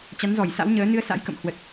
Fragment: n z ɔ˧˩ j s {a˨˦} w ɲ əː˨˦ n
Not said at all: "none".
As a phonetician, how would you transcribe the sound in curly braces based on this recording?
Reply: a̰˧˥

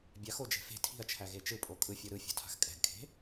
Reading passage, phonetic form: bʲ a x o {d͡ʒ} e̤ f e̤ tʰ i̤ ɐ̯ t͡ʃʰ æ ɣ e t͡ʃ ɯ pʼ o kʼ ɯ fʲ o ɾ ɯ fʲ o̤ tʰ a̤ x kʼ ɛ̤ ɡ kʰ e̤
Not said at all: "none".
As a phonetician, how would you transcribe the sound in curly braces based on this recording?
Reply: d͡ʒ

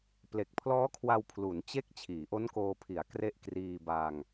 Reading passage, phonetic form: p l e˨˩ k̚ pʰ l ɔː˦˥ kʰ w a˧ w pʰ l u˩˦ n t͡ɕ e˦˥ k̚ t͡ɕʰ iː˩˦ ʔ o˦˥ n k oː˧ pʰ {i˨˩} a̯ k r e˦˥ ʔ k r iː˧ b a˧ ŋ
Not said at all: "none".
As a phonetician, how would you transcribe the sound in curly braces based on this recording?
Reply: i˩˦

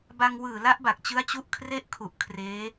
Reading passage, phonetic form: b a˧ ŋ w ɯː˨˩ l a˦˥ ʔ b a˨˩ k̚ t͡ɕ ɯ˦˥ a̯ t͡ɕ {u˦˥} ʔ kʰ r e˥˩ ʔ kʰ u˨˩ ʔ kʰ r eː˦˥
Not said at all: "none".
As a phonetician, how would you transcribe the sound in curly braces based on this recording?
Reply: u˦˥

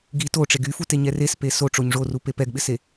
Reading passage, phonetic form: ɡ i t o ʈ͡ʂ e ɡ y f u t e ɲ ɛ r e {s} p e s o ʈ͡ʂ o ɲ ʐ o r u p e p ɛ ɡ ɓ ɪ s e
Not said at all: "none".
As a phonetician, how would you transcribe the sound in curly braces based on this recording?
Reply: s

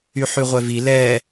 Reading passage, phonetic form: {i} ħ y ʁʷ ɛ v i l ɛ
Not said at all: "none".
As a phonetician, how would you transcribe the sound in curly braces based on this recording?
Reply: y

